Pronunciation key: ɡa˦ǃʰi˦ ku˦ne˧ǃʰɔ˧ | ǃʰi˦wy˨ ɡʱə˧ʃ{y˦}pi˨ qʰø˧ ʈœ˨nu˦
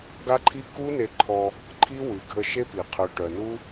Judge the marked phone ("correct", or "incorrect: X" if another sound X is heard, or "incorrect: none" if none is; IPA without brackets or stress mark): incorrect: e˦